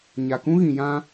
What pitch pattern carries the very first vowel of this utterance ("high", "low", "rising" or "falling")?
low